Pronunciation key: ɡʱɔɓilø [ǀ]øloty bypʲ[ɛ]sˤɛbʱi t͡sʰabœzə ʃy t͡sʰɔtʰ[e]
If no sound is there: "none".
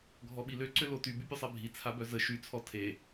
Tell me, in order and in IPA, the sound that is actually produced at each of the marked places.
ǀ, ø, e

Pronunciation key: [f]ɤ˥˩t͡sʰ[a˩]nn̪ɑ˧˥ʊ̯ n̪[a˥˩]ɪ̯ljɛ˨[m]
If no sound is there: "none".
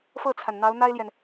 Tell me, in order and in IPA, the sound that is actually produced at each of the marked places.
f, a˩, a˥, n

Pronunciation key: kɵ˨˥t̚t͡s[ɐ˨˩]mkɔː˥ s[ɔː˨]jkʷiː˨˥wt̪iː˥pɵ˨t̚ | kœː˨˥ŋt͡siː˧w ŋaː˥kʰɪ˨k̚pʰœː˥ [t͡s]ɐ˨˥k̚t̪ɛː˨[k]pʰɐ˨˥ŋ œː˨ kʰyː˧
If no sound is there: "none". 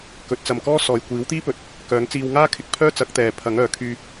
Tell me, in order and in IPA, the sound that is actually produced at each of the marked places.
ɐ˧, ɔː˨, t͡s, none

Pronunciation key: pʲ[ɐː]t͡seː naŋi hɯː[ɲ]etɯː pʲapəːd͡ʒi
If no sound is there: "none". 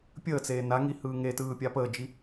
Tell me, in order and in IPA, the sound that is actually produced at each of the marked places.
əː, ŋ

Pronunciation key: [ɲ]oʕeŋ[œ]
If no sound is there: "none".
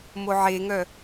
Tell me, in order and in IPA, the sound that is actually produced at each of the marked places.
m, œ

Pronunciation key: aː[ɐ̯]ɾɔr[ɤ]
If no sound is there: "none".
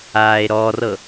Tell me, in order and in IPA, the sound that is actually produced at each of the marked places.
e̯, ɤ

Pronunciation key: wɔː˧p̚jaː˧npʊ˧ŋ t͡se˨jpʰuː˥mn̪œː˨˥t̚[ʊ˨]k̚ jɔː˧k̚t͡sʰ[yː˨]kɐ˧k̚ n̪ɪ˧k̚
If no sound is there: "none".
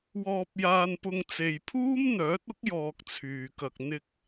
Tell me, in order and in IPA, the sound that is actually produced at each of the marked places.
ʊ˥, yː˨

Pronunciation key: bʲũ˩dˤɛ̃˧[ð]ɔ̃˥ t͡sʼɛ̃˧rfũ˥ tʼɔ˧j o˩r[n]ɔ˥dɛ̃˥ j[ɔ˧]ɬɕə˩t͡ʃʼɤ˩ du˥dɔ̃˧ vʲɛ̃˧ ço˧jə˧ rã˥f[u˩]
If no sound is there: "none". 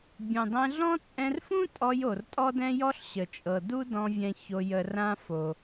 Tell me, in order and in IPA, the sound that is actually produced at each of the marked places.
ɮ, tʼ, ɔ˥, o˩

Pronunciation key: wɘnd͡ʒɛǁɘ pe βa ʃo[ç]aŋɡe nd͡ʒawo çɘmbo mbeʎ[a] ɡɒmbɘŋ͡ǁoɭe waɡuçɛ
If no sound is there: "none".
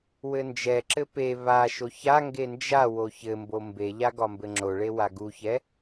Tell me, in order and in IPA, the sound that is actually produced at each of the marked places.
ç, a

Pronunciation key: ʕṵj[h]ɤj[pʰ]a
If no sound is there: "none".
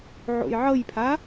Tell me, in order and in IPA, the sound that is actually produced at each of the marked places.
ʕ, pʰ

